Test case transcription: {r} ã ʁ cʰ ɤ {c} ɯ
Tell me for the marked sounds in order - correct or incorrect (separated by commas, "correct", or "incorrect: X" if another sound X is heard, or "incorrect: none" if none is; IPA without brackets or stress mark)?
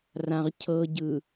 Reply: correct, incorrect: ɟ